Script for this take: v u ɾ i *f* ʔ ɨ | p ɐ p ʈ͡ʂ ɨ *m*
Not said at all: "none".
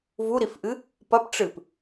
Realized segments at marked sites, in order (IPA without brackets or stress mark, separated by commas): f, p